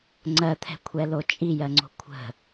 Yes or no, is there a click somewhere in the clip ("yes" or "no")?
yes